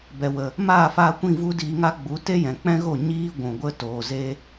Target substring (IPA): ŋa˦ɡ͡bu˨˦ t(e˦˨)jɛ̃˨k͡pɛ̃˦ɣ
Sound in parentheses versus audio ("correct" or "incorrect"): incorrect